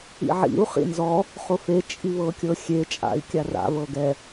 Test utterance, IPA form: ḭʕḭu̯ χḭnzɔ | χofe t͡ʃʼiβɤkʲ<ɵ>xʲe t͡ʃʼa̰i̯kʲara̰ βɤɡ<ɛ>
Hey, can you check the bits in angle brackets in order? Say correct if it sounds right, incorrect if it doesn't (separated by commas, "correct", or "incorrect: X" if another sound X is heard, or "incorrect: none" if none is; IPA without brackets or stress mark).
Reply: incorrect: ɤ, correct